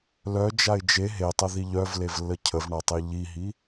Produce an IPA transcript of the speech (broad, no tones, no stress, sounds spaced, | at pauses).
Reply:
l œ d͡ʒ a ɪ̯ d͡ʒ e ɦ e tˤ ə ð i ʎ œ v l e v lː ə cʰ ə v ɳ a tˤ e ʎ i ɦ i